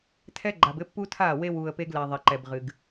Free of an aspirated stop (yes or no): no